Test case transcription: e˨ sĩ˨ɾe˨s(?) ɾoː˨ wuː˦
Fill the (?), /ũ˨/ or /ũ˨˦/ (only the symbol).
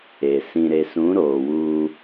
ũ˨˦